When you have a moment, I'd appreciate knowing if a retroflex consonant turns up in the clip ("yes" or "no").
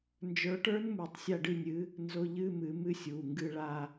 yes